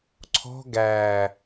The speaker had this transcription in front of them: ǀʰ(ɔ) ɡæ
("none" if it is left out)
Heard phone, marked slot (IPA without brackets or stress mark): ɔ̤